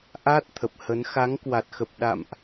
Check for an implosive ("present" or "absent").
present